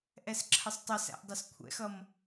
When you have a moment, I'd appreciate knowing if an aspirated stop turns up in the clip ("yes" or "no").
yes